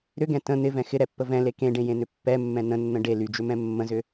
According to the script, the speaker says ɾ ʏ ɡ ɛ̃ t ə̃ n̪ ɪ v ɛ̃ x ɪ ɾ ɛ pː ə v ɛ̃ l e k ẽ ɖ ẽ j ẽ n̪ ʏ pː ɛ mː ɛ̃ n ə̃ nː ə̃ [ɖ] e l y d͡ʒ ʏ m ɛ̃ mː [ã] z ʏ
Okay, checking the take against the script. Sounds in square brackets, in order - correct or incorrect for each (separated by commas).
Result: correct, incorrect